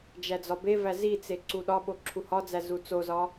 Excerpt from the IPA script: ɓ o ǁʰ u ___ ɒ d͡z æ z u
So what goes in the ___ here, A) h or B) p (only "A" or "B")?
A